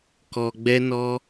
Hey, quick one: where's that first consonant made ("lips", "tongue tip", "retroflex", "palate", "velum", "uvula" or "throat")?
velum